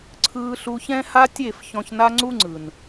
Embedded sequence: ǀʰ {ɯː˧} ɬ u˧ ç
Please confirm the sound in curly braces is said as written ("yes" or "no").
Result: yes